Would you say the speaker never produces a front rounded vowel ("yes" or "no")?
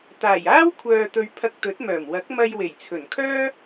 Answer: no